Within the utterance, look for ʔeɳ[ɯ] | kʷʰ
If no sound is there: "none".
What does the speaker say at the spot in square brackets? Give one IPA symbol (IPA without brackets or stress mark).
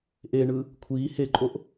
ɯ